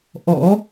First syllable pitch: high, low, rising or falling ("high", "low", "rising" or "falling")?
rising